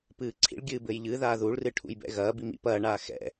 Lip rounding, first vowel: unrounded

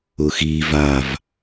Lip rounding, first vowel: rounded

